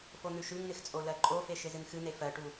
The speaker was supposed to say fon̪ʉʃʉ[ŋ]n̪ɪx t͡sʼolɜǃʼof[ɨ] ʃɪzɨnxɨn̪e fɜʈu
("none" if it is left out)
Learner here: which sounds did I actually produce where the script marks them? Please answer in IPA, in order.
ŋ, e

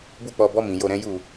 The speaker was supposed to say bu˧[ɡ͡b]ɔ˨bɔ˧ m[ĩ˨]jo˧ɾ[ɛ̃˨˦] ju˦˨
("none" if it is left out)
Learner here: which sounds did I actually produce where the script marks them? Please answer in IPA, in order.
k͡p, ĩ˨, ɛ̃˦

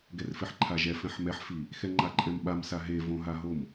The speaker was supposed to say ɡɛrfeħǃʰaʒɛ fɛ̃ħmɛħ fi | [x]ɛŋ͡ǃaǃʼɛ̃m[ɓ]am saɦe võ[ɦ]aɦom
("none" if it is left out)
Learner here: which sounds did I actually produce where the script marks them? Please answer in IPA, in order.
x, ɓ, ɦ

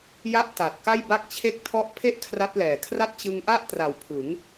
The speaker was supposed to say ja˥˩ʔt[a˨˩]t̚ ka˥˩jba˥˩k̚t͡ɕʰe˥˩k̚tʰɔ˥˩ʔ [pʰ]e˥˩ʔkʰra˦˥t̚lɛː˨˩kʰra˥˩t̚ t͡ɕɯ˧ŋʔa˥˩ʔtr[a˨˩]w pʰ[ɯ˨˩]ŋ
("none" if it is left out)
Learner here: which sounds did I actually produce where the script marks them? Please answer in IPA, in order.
a˨˩, pʰ, a˨˩, ɯ˩˦

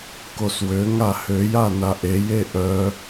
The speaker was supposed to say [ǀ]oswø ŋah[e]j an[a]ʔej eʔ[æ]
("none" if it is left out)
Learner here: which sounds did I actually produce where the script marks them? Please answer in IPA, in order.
k, ø, a, œ

